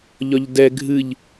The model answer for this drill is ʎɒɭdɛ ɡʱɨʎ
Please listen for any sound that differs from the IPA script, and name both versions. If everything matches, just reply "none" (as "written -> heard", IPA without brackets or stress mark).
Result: ɭ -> ʎ